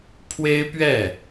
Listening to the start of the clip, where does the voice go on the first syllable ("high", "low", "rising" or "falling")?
high